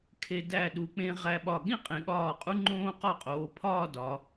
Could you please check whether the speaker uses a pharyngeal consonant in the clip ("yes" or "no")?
no